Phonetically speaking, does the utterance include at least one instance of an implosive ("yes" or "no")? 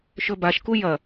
no